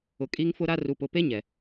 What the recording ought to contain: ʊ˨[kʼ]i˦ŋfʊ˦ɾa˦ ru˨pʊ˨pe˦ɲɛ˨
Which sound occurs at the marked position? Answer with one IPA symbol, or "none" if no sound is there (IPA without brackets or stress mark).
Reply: kʼ